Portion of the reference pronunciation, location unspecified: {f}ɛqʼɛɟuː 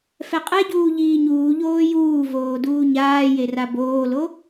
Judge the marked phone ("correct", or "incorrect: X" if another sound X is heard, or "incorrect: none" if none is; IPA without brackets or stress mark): correct